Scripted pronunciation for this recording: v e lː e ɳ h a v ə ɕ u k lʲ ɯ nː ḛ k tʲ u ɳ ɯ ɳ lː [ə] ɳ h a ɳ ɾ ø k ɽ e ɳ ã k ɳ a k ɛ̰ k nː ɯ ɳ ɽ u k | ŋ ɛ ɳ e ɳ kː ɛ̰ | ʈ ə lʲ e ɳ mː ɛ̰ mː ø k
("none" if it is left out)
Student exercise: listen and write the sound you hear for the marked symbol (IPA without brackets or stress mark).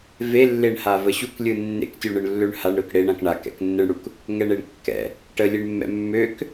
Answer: ø